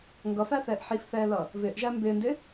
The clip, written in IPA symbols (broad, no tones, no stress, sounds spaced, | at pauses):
ŋ ɡ ʌ f æ θ ɛː ʔ ħ i f θ ɛː l ʌ | v ɪː ʔ ʒ æ m b ɪː n d ɪ